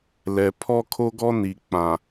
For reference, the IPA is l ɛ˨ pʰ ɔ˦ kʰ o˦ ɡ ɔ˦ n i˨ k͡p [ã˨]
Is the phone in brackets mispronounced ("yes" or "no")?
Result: no